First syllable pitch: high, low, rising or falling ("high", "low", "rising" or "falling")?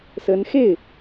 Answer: rising